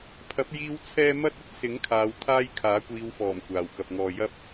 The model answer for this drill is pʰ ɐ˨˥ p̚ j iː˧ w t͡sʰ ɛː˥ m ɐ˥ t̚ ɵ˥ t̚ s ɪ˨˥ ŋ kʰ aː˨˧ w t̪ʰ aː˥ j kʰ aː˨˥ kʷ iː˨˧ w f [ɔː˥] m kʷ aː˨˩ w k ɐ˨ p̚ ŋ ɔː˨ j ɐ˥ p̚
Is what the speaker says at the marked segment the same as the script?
no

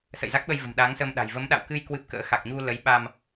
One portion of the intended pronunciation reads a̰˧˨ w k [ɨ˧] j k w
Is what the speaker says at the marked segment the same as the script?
yes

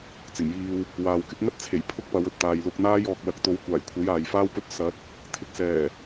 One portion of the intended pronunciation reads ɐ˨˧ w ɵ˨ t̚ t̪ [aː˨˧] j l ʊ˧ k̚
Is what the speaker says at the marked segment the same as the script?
no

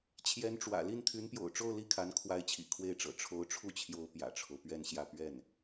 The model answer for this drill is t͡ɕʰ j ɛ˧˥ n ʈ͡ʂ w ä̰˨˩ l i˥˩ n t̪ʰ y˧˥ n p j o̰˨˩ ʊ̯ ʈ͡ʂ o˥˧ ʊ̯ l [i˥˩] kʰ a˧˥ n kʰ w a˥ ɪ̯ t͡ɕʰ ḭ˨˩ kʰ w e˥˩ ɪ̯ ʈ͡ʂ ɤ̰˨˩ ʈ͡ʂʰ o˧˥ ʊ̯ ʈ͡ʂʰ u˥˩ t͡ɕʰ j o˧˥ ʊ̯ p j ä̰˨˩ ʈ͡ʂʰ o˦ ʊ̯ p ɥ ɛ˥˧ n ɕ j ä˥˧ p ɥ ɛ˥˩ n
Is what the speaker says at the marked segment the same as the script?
yes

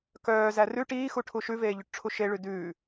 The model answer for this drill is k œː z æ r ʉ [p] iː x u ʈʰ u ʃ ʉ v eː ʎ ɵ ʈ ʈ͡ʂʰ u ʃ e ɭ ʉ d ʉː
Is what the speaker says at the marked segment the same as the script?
no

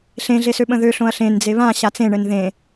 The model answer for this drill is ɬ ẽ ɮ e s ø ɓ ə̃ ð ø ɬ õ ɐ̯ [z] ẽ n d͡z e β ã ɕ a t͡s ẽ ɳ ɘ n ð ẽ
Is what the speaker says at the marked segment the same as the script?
no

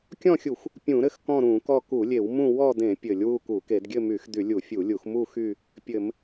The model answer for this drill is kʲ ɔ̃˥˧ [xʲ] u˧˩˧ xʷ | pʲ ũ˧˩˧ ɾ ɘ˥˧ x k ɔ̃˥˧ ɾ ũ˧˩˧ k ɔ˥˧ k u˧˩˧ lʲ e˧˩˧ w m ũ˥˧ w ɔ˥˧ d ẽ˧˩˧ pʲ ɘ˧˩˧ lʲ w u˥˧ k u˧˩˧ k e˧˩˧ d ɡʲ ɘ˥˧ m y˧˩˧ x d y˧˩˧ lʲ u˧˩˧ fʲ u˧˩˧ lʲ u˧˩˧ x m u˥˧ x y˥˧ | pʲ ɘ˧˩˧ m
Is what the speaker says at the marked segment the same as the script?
yes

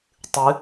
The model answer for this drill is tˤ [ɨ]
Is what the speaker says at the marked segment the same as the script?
yes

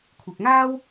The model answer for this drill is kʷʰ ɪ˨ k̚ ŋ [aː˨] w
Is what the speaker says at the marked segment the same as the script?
no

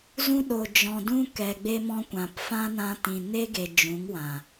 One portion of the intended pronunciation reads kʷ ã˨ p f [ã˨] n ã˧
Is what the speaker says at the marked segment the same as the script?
no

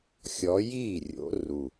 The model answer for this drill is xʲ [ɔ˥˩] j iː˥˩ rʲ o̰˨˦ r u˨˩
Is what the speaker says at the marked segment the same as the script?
no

